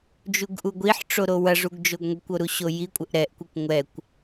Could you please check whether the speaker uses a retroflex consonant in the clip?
yes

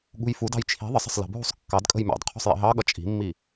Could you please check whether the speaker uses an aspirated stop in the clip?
yes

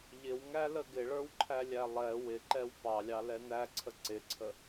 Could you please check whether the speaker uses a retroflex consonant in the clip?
yes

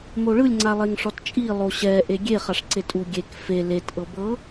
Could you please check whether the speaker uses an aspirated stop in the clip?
no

